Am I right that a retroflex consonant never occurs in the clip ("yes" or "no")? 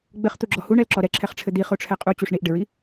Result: no